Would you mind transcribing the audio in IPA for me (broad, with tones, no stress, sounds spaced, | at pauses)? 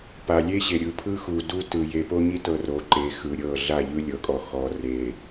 p a˨ lʲ e˦ ɕ e˨ ɾʲ ɯ˨ pʰ ɯ˦ x u˨ d u˦ t ɯ˨ j e˨ p o˦ ɲ i˦ t ɤ˦ r o˨˦ ǃ e˨˦ x ɯ˨ ɾʲ ɤ˦˨ ɮ a˦˨ ʎ ɯ˦ lʲ ɤ˨˦ kʼ ɔ˨ x ɔ˨ r e˨